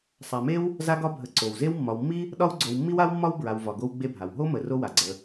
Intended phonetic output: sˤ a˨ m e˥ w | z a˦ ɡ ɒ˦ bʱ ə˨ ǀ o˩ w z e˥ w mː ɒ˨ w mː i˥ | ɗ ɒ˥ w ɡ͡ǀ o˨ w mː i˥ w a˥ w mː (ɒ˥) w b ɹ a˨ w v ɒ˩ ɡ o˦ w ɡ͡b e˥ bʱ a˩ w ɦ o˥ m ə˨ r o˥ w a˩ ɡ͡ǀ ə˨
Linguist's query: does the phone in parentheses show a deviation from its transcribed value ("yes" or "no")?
no